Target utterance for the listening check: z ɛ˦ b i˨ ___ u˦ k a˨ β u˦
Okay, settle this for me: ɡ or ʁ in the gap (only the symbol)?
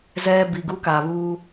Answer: ɡ